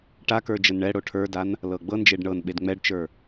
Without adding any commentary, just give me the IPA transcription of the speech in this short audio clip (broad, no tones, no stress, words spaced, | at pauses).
ʈakə˞ d͡ʒənɳɛɽo ʈʰə˞dan | lɤɡ͡bɤnd͡ʒeɖ ɳɤn ɓedŋ͡mɛɖt͡ʃə˞